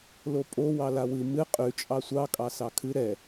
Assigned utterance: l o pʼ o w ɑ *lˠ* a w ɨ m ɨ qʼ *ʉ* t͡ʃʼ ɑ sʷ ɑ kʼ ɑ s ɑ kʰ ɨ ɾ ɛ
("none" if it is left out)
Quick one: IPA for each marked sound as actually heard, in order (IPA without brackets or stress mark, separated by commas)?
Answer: l, ʉ